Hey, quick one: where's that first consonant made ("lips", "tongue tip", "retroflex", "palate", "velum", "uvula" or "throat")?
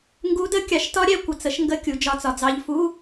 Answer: velum